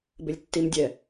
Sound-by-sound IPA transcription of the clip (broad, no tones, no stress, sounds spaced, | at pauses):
b ɪ lʲ tː i m dʲ ɛ